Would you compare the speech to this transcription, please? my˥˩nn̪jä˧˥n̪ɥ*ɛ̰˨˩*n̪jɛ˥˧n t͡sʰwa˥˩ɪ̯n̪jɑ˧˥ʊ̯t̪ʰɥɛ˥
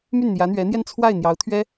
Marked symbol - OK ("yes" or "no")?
no